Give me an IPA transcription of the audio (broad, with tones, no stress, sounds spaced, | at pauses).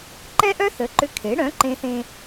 ǃ ɛ˥ ʔ œ˥ θ ə˩˥ ǃ ʏ˧˥ kʰ e˩˥ ɽ œ̃˩˥ ǃ ẽ˧ θ ẽ˧